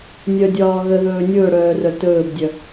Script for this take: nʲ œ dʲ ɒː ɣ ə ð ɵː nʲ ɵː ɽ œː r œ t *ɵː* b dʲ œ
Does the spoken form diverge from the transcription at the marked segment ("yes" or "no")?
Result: no